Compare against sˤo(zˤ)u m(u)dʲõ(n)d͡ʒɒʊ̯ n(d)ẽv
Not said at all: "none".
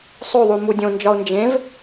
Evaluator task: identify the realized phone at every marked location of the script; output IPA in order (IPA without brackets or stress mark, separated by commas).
ðˤ, u, n, d͡ʒ